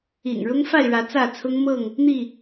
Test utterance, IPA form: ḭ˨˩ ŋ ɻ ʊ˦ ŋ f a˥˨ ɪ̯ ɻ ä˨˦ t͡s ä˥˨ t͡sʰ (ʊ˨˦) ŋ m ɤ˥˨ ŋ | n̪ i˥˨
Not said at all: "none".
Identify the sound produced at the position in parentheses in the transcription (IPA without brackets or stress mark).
ʊ˦